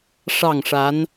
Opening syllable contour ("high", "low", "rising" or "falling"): falling